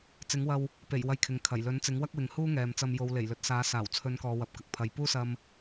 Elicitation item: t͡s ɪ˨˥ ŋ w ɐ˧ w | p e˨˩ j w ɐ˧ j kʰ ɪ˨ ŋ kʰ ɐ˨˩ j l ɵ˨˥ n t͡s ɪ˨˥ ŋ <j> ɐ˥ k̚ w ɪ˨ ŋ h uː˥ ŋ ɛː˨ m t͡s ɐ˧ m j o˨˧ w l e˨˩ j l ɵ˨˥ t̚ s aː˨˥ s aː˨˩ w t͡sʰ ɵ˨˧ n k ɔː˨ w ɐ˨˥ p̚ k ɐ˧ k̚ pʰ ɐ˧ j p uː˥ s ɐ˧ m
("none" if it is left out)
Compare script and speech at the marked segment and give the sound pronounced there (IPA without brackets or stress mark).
w